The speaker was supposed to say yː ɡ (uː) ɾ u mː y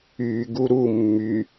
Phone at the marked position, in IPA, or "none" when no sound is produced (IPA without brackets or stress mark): u